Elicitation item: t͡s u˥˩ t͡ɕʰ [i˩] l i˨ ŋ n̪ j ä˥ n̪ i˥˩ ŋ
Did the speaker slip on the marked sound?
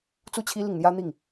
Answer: yes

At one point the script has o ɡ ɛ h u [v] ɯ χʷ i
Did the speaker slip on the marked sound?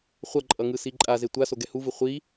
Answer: no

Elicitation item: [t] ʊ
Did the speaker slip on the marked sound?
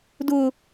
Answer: yes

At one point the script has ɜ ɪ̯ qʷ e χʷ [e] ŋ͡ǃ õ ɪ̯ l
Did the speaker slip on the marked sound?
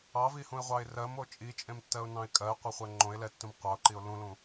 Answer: yes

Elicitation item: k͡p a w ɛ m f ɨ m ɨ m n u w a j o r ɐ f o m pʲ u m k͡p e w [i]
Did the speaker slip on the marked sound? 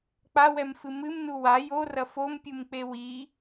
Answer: no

